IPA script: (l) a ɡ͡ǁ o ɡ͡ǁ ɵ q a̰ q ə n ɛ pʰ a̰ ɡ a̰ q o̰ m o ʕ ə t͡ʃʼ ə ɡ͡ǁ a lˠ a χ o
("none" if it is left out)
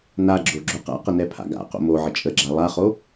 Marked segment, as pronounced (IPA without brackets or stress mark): n